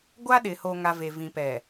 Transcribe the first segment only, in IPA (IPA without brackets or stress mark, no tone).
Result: ɡʷ